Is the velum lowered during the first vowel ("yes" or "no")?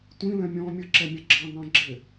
yes